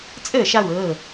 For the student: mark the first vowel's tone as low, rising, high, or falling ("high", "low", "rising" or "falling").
falling